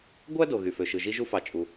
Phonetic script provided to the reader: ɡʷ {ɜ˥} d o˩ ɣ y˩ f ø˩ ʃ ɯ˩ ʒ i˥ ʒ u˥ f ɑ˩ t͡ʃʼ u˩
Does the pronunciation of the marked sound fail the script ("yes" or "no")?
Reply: yes